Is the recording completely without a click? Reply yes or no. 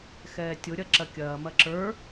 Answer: no